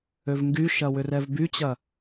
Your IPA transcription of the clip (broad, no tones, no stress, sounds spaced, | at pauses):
ø v ŋ ɡ y ʃ ɐ w ʏ r ɛ v b y t͡ɕ ɐ